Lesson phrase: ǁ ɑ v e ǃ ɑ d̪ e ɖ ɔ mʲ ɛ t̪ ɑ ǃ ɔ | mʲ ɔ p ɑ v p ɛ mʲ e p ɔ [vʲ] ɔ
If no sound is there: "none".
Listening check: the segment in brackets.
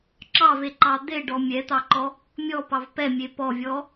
vʲ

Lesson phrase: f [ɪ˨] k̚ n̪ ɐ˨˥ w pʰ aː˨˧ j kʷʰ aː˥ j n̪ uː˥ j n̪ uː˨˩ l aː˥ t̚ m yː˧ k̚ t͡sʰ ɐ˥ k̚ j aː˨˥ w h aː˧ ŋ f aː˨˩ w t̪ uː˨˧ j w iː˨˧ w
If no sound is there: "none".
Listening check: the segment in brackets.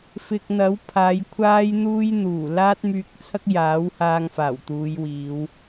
ɪ˨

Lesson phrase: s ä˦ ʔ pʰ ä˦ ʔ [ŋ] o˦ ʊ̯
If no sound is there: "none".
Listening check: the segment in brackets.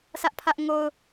ŋ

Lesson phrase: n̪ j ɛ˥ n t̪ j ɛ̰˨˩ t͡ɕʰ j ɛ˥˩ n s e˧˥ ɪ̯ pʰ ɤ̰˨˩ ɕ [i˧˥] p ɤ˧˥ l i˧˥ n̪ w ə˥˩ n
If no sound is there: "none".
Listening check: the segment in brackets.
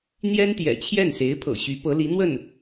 y˧˥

